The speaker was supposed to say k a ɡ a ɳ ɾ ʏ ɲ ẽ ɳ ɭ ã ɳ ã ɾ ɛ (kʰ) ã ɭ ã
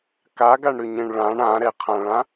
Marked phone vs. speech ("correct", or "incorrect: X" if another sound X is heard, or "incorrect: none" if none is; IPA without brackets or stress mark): incorrect: qʰ